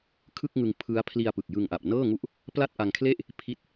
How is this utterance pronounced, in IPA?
kʰ ɯ˥˩ k̚ ŋ ɯ˧ ŋ pʰ ɯ˦˥ a̯ pʰ l i˧ a̯ p ɯ˨˩ k̚ j ɯ˧ ŋ ʔ a˨˩ p̚ n ɤː˥˩ ŋ u˦˥ ʔ | p l a˥˩ t̚ ʔ a˧ ŋ kʰ l e˥˩ ʔ | pʰ i˥˩ t̚

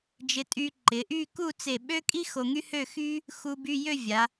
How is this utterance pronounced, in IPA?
d͡ʒ ɪ˧ tʼ y˧ ǃ ɪ˩˧ ʔ y˥˧ k u˥˧ t͡s e˧˩ ɓ ø˥ kʼ i˥ x o˧ ŋ y˥ h ø˥˧ x y˥ | x u˧ b y˥˧ j ø˥˧ vʲ a˩˧

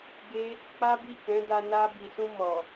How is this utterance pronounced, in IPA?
ɡ e˦ | k͡p a˦ b i˦˨ k ɛ̃˨˦ d a˧ n a˧ b i˨ s ũ˧ m ɔ˨

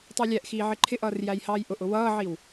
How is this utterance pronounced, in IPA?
tˤ ɑ lʲ æ ʔ x iː ʕ ɪ ǃʰ ɪ ʔ ʌː r j æ j h ɑː j ʔ ʊ ʔ ʊ w ʌː ʕ i w

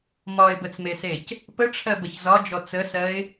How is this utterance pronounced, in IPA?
m ɒ ɪ̯ b ə t͡s m e s e c | p ə ʈ͡ʂʰ ɜ b ə ç z ɒ d͡ʒ ɔ t͡s ə s ɜ ɪ̯

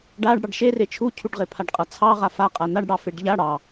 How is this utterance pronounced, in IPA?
ɖ a ɖ ɽ ɑ ɖ ʃ e r e t͡ʃʰ u cʰ u ɖ ʁ e pʰ a ɖ qʼ ʌ t͡sʰ ɑ ʁ a f a qʼ a n a ɖ ɽ ɑ f e ɖ ʎ a ɽ ɑ

